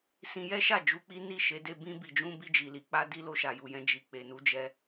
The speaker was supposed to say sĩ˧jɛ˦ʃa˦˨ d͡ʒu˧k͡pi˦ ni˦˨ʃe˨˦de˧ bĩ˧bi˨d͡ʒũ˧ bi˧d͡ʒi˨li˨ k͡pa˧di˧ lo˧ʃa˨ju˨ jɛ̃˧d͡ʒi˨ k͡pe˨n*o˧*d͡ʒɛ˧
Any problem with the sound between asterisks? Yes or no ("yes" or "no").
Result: yes